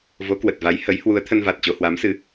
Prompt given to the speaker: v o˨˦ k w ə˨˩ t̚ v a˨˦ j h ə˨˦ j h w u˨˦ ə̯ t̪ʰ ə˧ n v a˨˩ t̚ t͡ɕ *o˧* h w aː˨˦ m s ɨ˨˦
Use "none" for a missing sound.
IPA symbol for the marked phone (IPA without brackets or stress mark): o˧